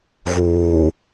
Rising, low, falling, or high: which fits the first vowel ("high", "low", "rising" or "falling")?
low